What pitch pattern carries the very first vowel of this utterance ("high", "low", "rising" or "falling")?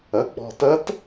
rising